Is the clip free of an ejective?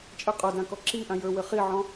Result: no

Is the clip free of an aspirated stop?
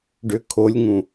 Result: no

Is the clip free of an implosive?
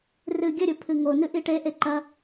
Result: yes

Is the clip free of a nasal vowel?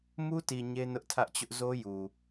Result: yes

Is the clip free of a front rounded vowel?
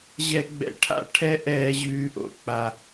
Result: yes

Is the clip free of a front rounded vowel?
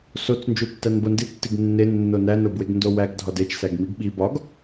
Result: yes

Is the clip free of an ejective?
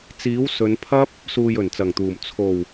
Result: yes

